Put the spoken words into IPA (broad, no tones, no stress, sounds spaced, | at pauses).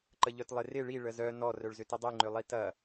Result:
ǃ ə ʎ œ t lˠ ɪ r ɪ ɭ i ɭ ə z œ n ɔ r œ ɭ z ʏ t ɪ dˤ i ŋ͡ǃ ʏ lˠ i t ɐ